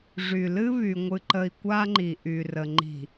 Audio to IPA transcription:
ʐy˨lɨ˦βy˨ ŋʷɨ˨ǃə˨i̯ kʷa˦ŋ͡ǃi˨ʔy˨rə˨ ŋ͡ǃi̤˨

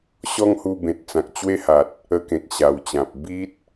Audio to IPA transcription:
ɕɔ˦ŋhu˧bẽ˨t̚ t͡sã˨k̚t͡ɕwe˦ha˨t̚ | ə˧kẽ˨k̚ ɕa˨˩wt͡ɕã˨p̚ bi˦t̚

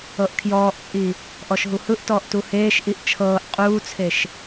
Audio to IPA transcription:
ɤʔkʰjɔːʔt͡sʼi | ʔɔʃɦuhɯʔtɔːʔ tuheːʃʔiʔ t͡ʃʰɤːʔ qʼuːt͡sʰeʃ

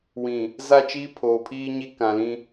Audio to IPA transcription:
wĩ˨ | za˦˨t͡ʃiː˦ pʰoː˨pʰiː˦ɲi˦ kã˨lĩ˦

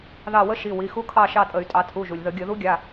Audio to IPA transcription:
ðɑ˦˨ wə˦˥ ʃi˩˧˩ wi˩˧˩xu˦˥kʰɑ˦˨ ʃɑ˦˨tʼə˧˩˧y̯tʼɑ˩˧ tʰu˩˧˩ʒu˩lʲ ðə˧˩˧ɡʲə˧˩˧ ðu˦˥ɡʲa˩˧˩

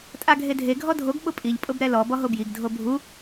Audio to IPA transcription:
tʼaɡʱedʱe ɡʱɔdʱoɡ ɓʊpʼiʎ pʼʊbɾɛlɔ bɔɦobjiɡ dʱobʱu

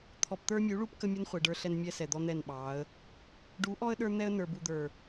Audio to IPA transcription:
t̪ʰɔ˨pt̪ə˞˦mʲu˨˦ɭu˦p kə˦mʲə˦n χʷɛ˨ɖə˞˦ɬɛ˦n mʲɛ˦sɛ˨d̪ɔ˦ n̪ɛ˦˨nɓɑ˨˦ə̯ | ɖu˨˦ʔɔ˦ə̯ ɗə˞˦n̪ɛ˦ə̯ nə˞˨bu˨d̪ə˞˨

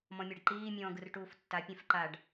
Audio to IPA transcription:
mɔ̃mʲɛɖǃiː mʲɔ̃ːɡɯrʈuːftːa pʲɛ̃fǃaɖ

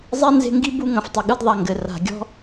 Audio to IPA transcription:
zˤi˥nze̤˦ŋɡi˥bu˦ ŋɐ̃˨ftˤɐ˨ɠɨ˦d ðˤa˨ŋɡɘ˩ ra̤˩ɡʲɔ̤˥

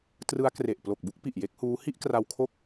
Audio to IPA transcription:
trɯ˦˥a̯kre˨˩ʔ plo˨˩k̚bu˥˩k̚ pi˨˩ʔje˦˥k̚huː˦˥ hi˥˩ʔkra˧w kʰo˥˩k̚

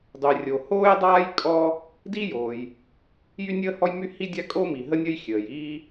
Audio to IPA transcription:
dˤy˩rʲo˩ hoː˥jdˤaː˥j kʼɔ˥ | di˥joː˩j | jy˥nʲəː˥hɔ˥jmy˥ hi˥dʲa˥ kʼo˥mi˩ ɦə˥nʲə˥j xʲəː˩jiː˥

